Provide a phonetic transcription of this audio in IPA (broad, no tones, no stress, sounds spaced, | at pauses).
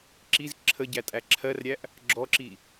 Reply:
ǁ i z ǁʰ ə ɟ æ tʼ æ ǁʰ ɜ r ɾʲ æ ʔ | ɡ͡ǁ ɔ ǁ i